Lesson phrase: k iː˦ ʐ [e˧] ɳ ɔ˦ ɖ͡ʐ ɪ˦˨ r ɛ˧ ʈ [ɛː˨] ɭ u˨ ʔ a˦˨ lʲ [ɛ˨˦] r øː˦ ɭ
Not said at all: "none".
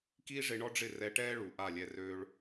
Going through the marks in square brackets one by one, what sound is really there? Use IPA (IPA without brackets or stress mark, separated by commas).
e˧, ɛː˦, ɛ˧